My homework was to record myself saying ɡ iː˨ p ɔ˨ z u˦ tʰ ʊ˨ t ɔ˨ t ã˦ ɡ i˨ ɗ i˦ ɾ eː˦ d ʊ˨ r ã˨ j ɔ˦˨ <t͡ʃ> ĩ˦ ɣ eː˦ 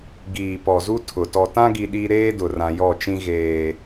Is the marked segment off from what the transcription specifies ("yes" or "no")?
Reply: no